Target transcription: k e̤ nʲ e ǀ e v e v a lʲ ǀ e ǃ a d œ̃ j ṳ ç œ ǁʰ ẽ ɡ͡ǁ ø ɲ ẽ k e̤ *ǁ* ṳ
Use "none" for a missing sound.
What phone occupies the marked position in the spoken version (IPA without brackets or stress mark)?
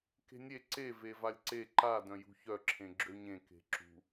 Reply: ǁ